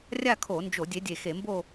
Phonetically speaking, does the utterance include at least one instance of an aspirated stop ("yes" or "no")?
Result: yes